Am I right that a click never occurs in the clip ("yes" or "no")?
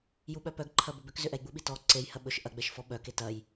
no